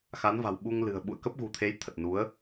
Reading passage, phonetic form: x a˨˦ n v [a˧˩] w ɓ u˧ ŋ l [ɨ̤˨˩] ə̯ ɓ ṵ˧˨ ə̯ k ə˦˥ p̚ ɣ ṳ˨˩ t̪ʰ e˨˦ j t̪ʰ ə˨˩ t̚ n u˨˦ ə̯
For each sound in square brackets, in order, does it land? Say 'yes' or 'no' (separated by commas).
no, yes